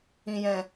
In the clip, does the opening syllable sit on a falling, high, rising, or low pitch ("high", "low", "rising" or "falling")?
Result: low